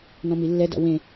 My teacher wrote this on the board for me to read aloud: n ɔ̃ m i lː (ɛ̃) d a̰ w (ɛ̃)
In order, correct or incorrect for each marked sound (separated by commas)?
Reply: incorrect, incorrect